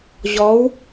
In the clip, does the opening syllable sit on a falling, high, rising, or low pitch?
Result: rising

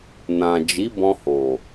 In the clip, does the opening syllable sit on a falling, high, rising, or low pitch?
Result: low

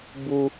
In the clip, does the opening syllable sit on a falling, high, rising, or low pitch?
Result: high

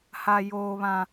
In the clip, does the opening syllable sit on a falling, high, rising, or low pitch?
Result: high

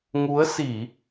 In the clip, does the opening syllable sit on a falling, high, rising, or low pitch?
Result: rising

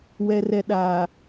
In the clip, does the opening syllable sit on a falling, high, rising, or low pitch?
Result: low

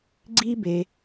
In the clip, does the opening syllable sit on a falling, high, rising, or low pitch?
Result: high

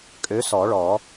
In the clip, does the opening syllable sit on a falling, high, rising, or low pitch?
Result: rising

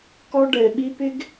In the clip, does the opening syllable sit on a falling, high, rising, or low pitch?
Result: high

